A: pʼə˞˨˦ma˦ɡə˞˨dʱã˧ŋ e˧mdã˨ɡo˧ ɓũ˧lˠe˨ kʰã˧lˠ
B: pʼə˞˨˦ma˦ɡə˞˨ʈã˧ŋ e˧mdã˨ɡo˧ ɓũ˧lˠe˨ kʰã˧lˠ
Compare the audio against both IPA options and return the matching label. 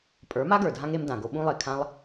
A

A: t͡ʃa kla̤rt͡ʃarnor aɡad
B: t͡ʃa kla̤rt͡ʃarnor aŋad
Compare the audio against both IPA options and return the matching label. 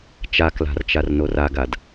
A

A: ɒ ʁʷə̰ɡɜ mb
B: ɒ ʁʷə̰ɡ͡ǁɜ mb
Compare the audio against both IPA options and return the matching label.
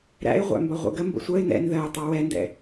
A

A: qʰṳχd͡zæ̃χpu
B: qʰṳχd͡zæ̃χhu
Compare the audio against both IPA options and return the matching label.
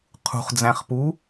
A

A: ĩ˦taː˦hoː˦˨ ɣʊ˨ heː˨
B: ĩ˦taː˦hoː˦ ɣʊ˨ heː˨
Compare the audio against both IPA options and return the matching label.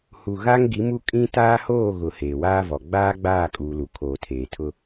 A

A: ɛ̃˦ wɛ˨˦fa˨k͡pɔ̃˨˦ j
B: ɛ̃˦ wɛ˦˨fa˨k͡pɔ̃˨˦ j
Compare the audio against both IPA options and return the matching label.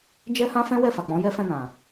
B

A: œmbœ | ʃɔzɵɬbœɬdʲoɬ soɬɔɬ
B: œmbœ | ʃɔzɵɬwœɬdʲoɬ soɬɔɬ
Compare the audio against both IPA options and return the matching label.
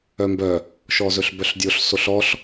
A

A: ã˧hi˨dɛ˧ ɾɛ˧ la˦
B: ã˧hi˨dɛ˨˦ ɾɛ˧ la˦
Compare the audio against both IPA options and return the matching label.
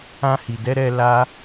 B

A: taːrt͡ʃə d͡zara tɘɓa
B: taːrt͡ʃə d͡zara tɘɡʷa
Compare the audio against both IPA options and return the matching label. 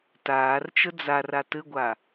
B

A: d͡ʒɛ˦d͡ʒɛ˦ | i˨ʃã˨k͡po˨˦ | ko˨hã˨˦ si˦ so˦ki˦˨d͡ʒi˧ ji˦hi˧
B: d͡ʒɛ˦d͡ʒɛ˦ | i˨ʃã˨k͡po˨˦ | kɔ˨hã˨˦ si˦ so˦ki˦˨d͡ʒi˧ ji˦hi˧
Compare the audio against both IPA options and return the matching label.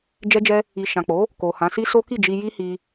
A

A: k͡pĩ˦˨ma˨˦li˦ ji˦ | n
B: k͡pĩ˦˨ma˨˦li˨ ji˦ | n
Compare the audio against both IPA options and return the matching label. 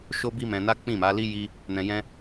A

